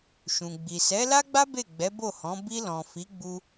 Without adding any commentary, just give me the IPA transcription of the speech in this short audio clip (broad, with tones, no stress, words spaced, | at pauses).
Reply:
ʃũ˨ɡ͡bi˨ sɛ˨˦la˦ɡ͡ba˦ be˦˨ɡ͡bɛ˨˦ bo˦˨hɔ̃˨˦ bi˧lɔ̃˨ fi˨˦ ɡ͡bu˦